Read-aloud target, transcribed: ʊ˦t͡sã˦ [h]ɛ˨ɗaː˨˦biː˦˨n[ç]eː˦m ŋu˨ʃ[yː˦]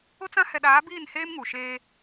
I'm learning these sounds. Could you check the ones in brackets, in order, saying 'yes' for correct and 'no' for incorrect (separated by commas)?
yes, no, no